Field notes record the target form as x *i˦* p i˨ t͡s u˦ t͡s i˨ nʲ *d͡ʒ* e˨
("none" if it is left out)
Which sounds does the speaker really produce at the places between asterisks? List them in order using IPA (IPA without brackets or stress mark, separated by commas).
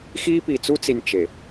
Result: i˦, t͡ʃ